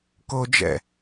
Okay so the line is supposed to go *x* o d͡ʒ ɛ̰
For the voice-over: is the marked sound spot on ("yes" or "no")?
no